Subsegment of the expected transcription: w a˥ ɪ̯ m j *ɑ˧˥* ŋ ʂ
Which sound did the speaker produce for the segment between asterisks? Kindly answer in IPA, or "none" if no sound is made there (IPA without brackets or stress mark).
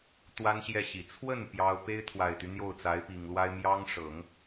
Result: ɑ˥